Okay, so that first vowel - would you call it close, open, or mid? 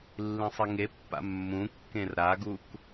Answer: close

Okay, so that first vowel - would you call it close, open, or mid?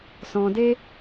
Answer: mid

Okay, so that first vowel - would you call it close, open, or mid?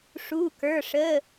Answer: close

